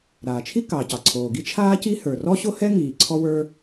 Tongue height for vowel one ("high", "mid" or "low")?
low